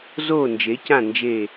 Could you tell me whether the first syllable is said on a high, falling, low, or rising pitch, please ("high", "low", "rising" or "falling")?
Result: falling